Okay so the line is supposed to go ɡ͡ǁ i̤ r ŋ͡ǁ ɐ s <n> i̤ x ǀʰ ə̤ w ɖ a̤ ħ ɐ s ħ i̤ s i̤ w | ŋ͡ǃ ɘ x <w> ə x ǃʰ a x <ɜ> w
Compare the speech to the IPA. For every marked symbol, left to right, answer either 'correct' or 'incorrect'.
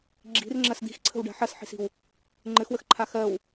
incorrect: d̪, correct, correct

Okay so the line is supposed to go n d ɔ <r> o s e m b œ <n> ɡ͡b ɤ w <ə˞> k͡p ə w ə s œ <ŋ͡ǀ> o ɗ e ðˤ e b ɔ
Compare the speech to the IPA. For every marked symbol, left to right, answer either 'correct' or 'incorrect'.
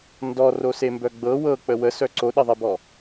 correct, incorrect: none, incorrect: ɤ, incorrect: ǀ

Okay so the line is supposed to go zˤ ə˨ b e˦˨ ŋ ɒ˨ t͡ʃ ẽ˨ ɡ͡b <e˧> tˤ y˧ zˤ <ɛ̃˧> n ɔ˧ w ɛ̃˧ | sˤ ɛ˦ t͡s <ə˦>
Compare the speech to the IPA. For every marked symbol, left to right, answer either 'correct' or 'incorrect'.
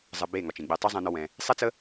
correct, correct, correct

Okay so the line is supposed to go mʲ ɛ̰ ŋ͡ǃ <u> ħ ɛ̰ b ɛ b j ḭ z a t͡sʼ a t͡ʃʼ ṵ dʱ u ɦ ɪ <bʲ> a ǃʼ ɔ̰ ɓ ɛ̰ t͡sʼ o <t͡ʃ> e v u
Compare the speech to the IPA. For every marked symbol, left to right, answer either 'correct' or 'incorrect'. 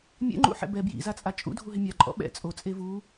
incorrect: ṵ, incorrect: mʲ, incorrect: t͡sʼ

